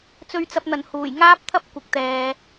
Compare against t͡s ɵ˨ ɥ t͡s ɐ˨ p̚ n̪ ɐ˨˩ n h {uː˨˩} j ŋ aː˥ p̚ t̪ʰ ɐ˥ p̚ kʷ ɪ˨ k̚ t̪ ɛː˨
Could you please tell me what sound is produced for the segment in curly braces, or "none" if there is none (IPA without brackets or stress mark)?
uː˨˩